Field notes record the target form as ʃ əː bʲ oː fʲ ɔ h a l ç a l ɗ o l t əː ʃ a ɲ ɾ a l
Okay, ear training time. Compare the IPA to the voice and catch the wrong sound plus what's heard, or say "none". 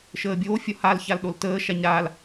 none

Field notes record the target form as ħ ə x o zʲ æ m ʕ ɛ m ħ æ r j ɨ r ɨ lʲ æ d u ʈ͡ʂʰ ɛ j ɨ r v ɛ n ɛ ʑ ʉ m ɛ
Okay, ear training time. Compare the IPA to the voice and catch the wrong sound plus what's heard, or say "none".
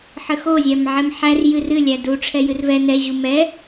ʉ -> u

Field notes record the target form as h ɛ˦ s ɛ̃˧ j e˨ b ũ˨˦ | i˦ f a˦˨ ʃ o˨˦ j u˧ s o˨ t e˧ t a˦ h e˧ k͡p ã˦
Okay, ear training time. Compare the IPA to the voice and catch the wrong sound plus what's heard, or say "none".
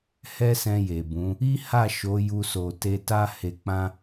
f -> h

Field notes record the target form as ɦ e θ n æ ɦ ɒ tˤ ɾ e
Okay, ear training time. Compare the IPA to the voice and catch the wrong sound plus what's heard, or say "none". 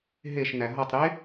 θ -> ʃ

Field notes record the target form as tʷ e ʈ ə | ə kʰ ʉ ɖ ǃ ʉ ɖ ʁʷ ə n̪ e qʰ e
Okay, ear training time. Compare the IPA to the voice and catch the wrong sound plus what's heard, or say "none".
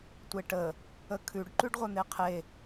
none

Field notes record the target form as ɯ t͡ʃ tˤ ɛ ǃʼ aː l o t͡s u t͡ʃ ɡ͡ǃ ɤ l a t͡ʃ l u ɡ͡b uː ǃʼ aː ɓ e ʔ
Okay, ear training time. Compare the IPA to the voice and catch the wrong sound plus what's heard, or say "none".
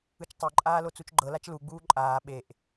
none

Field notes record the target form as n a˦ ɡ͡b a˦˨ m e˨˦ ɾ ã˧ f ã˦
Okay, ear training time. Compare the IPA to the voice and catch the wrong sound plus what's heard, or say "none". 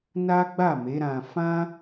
none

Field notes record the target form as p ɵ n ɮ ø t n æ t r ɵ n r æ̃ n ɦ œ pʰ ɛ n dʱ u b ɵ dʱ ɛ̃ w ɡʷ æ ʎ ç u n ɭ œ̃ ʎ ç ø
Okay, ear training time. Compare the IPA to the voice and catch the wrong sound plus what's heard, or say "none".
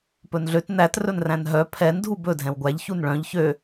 none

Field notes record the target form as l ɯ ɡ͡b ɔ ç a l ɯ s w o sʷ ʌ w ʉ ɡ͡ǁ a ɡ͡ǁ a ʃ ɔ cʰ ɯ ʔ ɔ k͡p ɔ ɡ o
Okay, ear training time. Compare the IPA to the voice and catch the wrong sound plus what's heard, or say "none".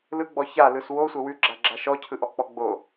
ɡ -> ɡ͡b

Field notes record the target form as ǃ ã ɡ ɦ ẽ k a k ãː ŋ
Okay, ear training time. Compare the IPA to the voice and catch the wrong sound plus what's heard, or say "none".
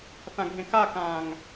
ǃ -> θ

